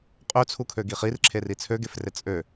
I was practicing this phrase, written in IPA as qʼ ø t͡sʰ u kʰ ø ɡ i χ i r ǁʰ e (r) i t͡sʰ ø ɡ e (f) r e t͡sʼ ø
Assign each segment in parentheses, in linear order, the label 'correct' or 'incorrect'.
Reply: correct, correct

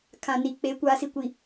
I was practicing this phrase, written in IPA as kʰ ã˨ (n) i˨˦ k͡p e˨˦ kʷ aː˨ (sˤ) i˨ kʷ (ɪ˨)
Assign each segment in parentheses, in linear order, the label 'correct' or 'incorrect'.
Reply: correct, incorrect, incorrect

